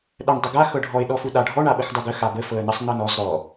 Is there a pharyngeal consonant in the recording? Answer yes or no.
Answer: no